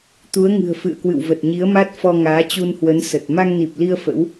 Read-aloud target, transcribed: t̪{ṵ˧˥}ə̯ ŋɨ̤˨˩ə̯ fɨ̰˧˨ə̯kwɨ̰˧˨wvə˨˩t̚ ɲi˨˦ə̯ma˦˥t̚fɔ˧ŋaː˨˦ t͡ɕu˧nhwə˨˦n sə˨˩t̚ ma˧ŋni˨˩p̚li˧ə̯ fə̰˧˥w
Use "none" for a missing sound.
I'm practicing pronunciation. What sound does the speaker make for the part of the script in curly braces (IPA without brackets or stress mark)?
u˨˦